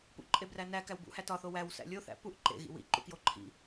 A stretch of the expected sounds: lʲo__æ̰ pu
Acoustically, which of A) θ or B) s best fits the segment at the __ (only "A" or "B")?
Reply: A